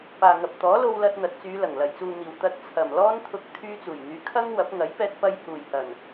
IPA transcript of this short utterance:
p aː˨ ŋ ɐ˨ p̚ t̪ ɔː˨˥ l o˧ w l ɐ˧ t̚ n̪ ɐ˨˥ t̚ t͡s yː˨˧ l ɐ˨˩ ŋ l ɐ˨˩ j t͡s uː˨ n̪ iː˨˩ w t̪ ɐ˧ t̚ t͡sʰ ɐ˨˩ m l ɔː˥ n t̪ʰ ʊ˧ k̚ t̪ʰ yː˧ t͡s uː˨˩ j n̪ yː˨˧ kʰ ɐ˥ ŋ w ɐ˨˥ p̚ ŋ ɐ˨˥ j p ɛː˧ t̚ p ɐ˧ j h uː˨˩ j h ɐ˨˩ n

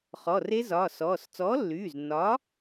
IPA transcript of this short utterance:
χ ɔ˩˧˩ r e˦˥ z ɒː˩˧˩ s ɔː˩˧˩ s t͡s ɔː˨˥ lː yː˩˧˩ z nː ɒ˨˥

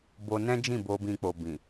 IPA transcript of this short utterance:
b o˧ n ɛ̃˦ d͡ʒ ĩ˦˨ b o˧ b ĩ˧ k͡p o˨ b ĩ˨

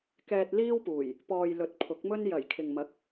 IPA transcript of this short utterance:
k ɛː˧ t̚ l iː˥ w p uː˨˩ j | p ɔː˨ j l ɵ˨˥ t̚ pʰ ʊ˨˥ k̚ m ɵ˥ n j ɐ˨˩ j kʰ ɪ˨ ŋ m ɐ˨˥ k̚

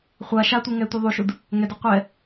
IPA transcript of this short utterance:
χʷ a ʃ a tʷ i ŋ ɛ tʷ i ðˤ u ʃ u d | ŋ ɛ d o qʷ ɛ

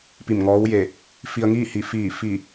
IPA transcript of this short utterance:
p i˧˩ m ŋ ɔː˧˥ w j e˧˩ | f i˧ ə̯ ŋ iː˥˨ h i˧˩ f iː˧˩ f i˧˩

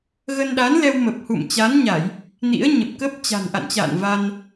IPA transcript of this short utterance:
ɣ ə˧ n ɗ aː˨˦ n l ɛ˧ w m ə˨˩ p̚ h ṵ˧˨ m t͡ɕ a˨˦ n ɲ a˧˩˨ j | n ḭ˧˥ ə̯ ɲ ə˨˩ p̚ k ə˦˥ p̚ t͡ɕ a̤˨˩ n ʔ a̰˧˨ n t͡ɕ a̰ː˧˨ n v a˧ n

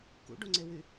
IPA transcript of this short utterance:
k ṵ ɖ o ŋ͡ǀ e w y

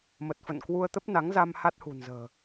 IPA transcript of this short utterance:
m ə˨˩ t̚ f ə̰˧˨ n k w u˧ ə̯ t̪ ə˦˥ p̚ n a˨˦ ŋ z a˧ m h a˦˥ t̚ h ṳ˨˩ n z ə̤ː˨˩

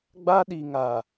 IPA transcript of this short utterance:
ɡ͡b a˦ ɗ i˨ ŋ a˨

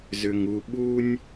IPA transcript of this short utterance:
z ʏ˨ ŋ u˨ ɓ u˦ nʲ

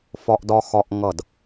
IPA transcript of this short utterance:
f ɒ˧ ʔ d ɒ˧ x ɒ˧ ʔ ŋ ʌ˧˩ d

